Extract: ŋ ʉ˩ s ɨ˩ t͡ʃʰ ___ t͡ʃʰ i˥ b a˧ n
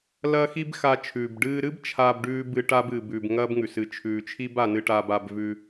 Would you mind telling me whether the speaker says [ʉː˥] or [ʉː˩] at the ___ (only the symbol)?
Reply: ʉː˩